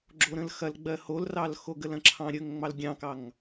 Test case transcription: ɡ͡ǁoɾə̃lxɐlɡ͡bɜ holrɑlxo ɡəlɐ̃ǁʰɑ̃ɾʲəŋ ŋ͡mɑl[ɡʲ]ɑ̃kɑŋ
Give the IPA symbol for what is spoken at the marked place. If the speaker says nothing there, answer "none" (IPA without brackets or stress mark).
ɡʲ